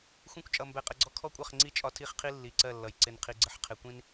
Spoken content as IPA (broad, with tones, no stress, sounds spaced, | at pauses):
xʷ ĩ˦ kʷ t͡ʃʼ ʌ˧ m b ɛ˧ qʼ ə˧ ɡ͡ǀ ɔ˦ kʰ ɔ˦ kʷʼ ʌ˦˨ χ ŋ͡ǀ i˦˨ t͡ʃʼ ɒ˦ tʰ i˦˨ χ qʰ i˦ lː i˨ ǀ ɜ˦˨ lː ʌ˨ j ǀ ɪ˧ n qʰ i˧ ɡ͡ǀ ə˨ ħ qʰ ɪ˧ kʷ ĩ˦ n